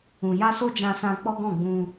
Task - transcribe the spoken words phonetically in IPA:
ũ˨ j a˧ s o˦ d͡ʒ ã˧ s ã˧ k͡p ɔ˦ ɡ ɔ̃˦˨ ɡ͡b ũ˧

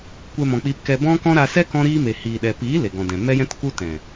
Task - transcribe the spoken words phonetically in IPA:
kʷ ɛ˧ m ɔ̃˨ k͡p iː˧ p k ɛ˧ b ɔ̃˦ k ɔ̃˦ ɾ a˧ s ɛ˦ k ɔ̃˦ ɾ iː˦ m e˨ h iː˨ ɗ ɛ˨ p iː˨˦ l e˨ ɡ ɔ̃˨ d ɛ̃˨ m ɛ˦ j ɛ̃˦ t k u˦ t ɛ̃˨

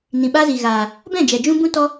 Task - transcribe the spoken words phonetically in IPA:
n ĩ˨ ɓ a˦ z i˨ ɣ aː˨ | b ɛ̃˦˨ d͡ʒ ɛ˨ d͡ʒ ũ˦ b ũ˦ t ɔ˦

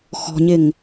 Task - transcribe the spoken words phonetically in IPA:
x ɔ̤ ɲ ɪ ŋ

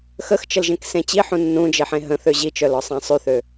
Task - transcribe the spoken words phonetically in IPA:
x ə x t͡ʃ ə l ʒ ẽ k s ẽ t͡ɕ i ħ ũ nː ũ d͡ʒ e ħ ẽ ɦ ə̃ θ ø ʑ i t͡ʃ œ l ɔ sˤ ã sˤ y θ ø

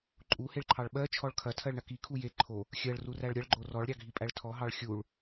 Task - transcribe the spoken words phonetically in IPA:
ǃʼ u h e ɭ ǃʰ ɑ ɭ ɓ ɜ t͡ʃʰ ɔ ɭ kʰ ɐ tʰ ɜ ɭ ɳ ɐ k i kʰ u j e ǃʰ o | xʲ ɜ ɭ r u r æ ɭ ɾʲ ɐ ɭ ɡ͡ǃ o r ɔ ɭ ɾʲ ɑ ɡʱ i pʼ æ ɭ tʰ ɔ ɦ ɑ ɭ xʲ u ɭ

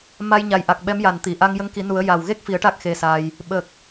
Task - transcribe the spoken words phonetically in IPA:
m a˧ j ɲ a˨˩ j ʔ a˨˩ k̚ ɓ ɛ˧˥ m j a˨˩ n t̪ i˨˩˨ ʔ a˧ ŋ j ə˧˥ ŋ k i˨˩˦ n u˨˩˦ ə̯ j a˨˩ w ɣ e˦˥ k̚ f i˨˩˦ ə̯ ʈ a˦˥ k̚ x e˧ s a˧ j | ɓ ə˨˩ k̚

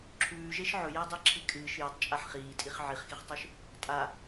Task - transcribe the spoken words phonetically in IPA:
ǁʰ ʉː ʒ e ʃ ʕ ɵ j e dˤ e ǁʰ i kʼ ɨː ʃ j ɐ tˤ t͡ʃʼ a ħ χ iː tʼ i χ ʕ i χ x i χ tˤ ʉ ʃ | tʼ a

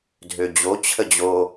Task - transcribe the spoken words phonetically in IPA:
dʱ ø d͡ʑ o t͡ɕʰ ə d͡ʑ o

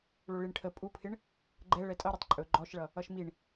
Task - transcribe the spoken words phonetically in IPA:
ɭ o ɭ i ɳ ʈʰ ə pʼ u pʰ ɪ ɳ | ɡ͡ǃ ɛ ɭ ɛ tʼ ʌ ɾ ɵ tˤ ǃʼ ɵ ɡ͡ǃ ɔ ʃ ɭ ʌ | ʌ ʃ m i ɳ

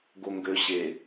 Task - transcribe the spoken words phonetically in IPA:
ɡ o ŋ ɡ ø ɕ e

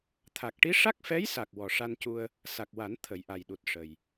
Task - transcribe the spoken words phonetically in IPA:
t̪ʰ a˨˩ k̚ ʈ i˧˥ ʂ a˦˥ k̚ f ɛ˧˥ j s a˨˩ k̚ w ɔ˨˩ ʂ a˧ n c u˧ ə̯ | s a˨˩ k̚ w a˨˩˦ n t̪ʰ ə˨˩˦ j ʔ a˨˩ j ɗ u˨˩ t̚ ʂ ə˨˩ j

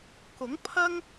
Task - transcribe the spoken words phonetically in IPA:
k ʊ˨˥ ŋ pʰ ɐ˥ ŋ

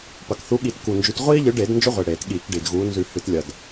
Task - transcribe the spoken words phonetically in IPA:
p ɐ˨˩ k θ u˨˦ ɠ i˧˩˧ t k u˨˩ n d͡ʒ ʉ˨˦ t ʁʷ iː˦ ʎ ɨ˨˦ ɖ e˧˩˧ d n d͡ʒ o˦ ʁʷ e˨˩ ɽ eː˧˩˧ t ɠ iː˧˩˧ k ɖ i˨˩ d ɣ uː˨˦ n z ʉ˧˩˧ h ɨ˧˩˧ t lʲ ɐ˨˩ d

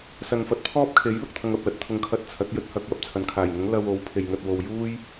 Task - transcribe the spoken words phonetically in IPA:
s ɐ˨ n f ɐ˨˥ t̚ pʰ ɔː˥ p̚ kʰ e˨˥ j l ʊ˨ k̚ t̪ʰ ɐ˧ ŋ ɐ˨ p̚ l ɐ˨ t̚ t̪ʰ ʊ˧ ŋ kʰ ɐ˧ t̚ t͡sʰ ɐ˨˥ t̚ j ɵ˧ t̚ h ɐ˧ k̚ w ɐ˨ p̚ t͡sʰ ɐ˨ n kʰ aː˨˩ j ŋ ʊ˨˥ ŋ l ɐ˧ w o˨˥ w pʰ e˨ j ŋ ɐ˨ t̚ w o˨ w j uː˥ j

